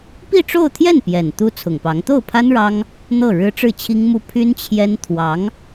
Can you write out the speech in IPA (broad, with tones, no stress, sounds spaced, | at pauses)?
p i˥˧ ʈ͡ʂ o˥˧ ʊ̯ t̪ʰ j ɛ˥˩ n p j ɛ˨˩ n t̪ u˥ t͡sʰ ʊ˨˩ ŋ p ɑ˧˥ ŋ t̪ o˥˩ ʊ̯ pʰ a˥ n ɻ ɑ˥ ŋ | n̪ ɤ˥˩ ɻ ɻ̩˥ ʈ͡ʂ ɻ̩˥˩ t͡ɕʰ i˥ ŋ m u˥˩ pʰ y˥ n t͡ɕʰ j ɛ˥ n t̪ʰ w ɑ˧˥ ŋ